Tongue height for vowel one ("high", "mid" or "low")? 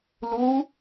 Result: high